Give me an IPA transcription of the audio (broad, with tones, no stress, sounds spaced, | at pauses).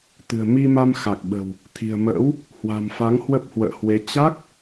t̪ ɨ̤˨˩ ə̯ m i˧ m a˧ m x a˨˩ k̚ ɓ ə̤˨˩ w | t̪ʰ i̤˨˩ ə̯ m ə̰ː˧˥ w | h w a̤˨˩ m f a˨˦ ŋ h w ə˦˥ p̚ h w ə̰ː˧˨ h w e˨˦ t͡ɕ a˦˥ k̚